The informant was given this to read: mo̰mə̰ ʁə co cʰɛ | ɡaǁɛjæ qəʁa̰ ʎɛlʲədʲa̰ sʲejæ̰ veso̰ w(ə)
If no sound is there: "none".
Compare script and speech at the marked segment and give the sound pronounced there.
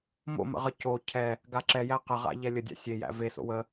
ə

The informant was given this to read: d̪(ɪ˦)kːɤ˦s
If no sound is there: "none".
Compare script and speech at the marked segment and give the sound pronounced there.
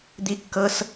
i˦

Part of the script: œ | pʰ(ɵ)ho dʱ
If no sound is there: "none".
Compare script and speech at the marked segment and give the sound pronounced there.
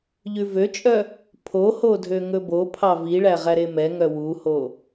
o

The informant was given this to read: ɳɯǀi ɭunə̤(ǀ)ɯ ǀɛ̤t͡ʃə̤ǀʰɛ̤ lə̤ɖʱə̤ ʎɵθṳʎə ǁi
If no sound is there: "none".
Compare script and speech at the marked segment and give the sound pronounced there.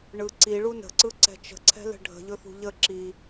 ǀ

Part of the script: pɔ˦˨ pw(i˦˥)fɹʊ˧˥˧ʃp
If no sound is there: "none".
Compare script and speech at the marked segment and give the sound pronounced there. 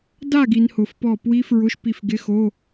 i˦˥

